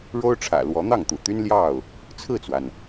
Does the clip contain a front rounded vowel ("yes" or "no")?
yes